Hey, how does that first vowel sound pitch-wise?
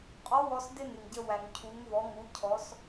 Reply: rising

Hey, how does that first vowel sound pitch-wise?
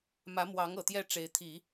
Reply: rising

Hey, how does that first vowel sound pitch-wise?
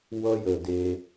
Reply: high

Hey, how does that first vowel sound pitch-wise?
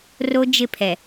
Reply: high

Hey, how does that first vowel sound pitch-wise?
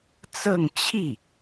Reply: falling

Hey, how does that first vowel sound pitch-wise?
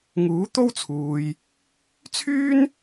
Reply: rising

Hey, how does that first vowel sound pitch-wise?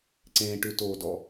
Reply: low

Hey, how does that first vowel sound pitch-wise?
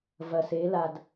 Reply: low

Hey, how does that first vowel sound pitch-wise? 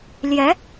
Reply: rising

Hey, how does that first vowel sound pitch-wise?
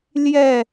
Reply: falling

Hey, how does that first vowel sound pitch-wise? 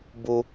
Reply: low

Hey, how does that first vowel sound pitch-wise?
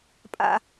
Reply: high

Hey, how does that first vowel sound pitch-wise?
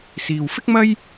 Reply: low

